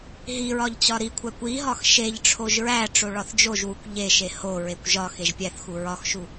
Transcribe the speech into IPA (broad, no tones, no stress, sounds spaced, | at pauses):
ɦ i ɹ ɒ ʎ t͡ɕ ɒ ɾ i kʷʰ æ kʷ i ɦ ɒ x ʃ e ʎ ʈ͡ʂʰ o ʒ ɹ æ ʈ͡ʂ o ɭ ɒ θ d͡ʒ o ʒ w u kʷ ʎ e ʃ e h o ɹ e kʷ ʒ ɒ x e ʒ pʲ æ θ x u ɹ ɒ x ʃ u